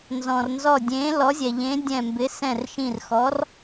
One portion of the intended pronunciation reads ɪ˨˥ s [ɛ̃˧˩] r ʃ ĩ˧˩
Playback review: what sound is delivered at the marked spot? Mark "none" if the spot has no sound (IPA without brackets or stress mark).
ɛ̃˧˩